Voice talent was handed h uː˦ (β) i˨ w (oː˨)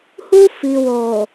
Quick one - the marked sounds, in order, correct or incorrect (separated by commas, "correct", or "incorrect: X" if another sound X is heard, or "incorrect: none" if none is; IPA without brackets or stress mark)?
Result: incorrect: f, correct